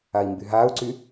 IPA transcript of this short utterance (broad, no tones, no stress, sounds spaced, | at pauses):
a i̯ m b y ɦ aː u̯ ǀ y